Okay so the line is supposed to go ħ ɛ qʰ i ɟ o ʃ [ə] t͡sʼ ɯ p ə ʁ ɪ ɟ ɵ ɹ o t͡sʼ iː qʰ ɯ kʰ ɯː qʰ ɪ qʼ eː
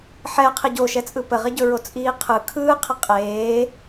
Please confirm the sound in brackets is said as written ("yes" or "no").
no